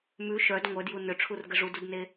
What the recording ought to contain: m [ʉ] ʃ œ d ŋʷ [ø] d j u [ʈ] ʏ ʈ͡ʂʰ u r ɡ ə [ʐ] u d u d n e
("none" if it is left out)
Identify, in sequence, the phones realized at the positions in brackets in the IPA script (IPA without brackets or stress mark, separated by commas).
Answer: ʉ, œ, n, ʐ